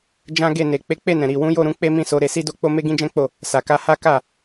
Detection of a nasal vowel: present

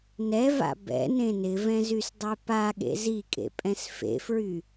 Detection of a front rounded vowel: present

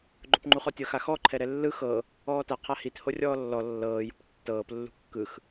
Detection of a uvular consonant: present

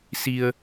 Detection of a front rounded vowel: absent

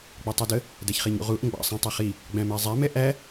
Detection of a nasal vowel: present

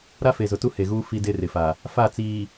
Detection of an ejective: absent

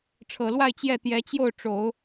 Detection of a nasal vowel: absent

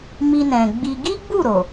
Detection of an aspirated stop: absent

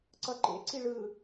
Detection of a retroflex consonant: present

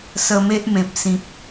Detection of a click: absent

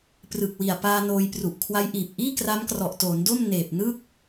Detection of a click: absent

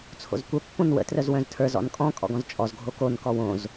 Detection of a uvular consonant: absent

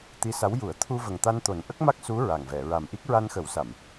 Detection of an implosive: absent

